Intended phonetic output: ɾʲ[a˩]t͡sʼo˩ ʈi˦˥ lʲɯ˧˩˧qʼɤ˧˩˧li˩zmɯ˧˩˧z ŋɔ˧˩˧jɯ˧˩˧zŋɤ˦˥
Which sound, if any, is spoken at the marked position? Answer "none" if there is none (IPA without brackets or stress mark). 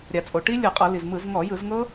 a˩